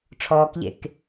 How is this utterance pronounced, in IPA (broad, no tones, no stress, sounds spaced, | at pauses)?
ʈ͡ʂʰ ɔː k ʎ ḛ k